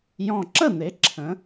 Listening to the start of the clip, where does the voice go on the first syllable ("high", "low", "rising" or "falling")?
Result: low